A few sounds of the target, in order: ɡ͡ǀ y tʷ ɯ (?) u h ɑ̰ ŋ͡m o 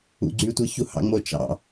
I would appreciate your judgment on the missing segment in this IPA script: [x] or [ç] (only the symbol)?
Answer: ç